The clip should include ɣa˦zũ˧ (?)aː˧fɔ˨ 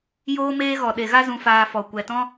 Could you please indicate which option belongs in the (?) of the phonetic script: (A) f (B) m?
A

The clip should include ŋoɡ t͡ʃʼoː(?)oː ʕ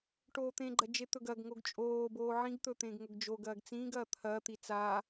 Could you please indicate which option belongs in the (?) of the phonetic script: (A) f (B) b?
B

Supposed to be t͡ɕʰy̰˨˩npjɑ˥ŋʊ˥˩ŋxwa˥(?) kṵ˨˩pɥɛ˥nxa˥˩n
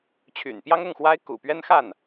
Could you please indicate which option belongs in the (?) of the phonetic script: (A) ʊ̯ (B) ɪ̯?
B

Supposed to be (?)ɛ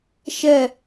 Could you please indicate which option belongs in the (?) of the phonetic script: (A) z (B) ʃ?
B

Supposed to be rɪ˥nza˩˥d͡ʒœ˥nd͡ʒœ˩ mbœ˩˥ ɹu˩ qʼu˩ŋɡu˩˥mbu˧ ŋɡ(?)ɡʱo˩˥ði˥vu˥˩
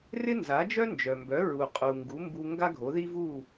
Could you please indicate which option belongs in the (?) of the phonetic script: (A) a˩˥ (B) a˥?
B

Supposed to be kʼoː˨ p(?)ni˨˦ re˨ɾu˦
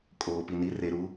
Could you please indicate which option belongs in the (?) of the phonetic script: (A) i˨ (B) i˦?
A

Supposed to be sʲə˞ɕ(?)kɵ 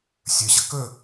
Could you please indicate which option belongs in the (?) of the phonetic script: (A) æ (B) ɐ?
B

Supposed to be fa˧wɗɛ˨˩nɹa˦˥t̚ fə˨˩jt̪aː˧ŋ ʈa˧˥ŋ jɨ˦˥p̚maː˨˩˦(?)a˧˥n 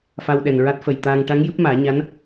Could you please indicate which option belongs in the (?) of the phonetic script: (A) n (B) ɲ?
B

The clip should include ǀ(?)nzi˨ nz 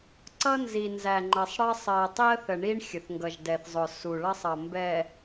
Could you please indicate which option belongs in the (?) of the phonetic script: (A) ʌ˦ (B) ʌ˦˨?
A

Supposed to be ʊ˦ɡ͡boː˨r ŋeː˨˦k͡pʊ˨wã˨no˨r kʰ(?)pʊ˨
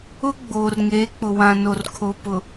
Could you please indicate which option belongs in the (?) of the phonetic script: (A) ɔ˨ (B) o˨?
B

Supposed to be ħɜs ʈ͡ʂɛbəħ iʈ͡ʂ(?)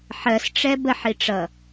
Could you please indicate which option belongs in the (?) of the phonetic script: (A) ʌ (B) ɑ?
A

